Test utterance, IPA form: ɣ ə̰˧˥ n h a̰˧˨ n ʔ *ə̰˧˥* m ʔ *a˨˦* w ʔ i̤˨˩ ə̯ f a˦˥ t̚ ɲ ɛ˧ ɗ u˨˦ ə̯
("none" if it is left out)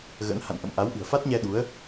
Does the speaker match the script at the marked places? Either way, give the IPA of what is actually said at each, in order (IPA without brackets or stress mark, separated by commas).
ə̰˧˨, a˨˦